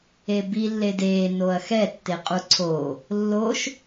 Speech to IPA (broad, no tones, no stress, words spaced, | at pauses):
ebi lːedeː noɐ̯xɛ tːeqʼuǀʰo | lːoʃ